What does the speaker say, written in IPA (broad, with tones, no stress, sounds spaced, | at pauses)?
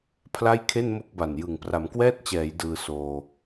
pʰ l a˥˩ j kʰ e˥˩ n m o˥˩ k̚ b a˨˩ n j ɯ˨˩ ŋ p r a˩˦ m k w ɛː˥˩ t̚ t͡ɕ ɛː˩˦ j d ɯː˧ s oː˧